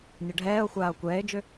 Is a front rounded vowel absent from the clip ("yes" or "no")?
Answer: no